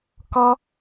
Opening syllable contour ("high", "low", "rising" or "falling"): high